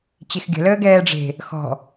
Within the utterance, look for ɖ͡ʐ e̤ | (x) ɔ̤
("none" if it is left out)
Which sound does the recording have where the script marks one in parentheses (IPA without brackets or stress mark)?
x